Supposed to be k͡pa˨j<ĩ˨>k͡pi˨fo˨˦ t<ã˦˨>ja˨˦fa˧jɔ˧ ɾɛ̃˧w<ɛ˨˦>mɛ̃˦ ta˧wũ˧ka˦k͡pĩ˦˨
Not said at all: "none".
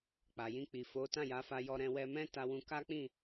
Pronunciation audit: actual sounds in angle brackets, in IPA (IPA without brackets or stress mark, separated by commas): ĩ˧, ã˦˨, ɛ˧